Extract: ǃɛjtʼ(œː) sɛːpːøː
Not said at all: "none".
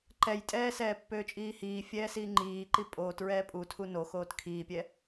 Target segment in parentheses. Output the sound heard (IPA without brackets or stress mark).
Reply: ɛː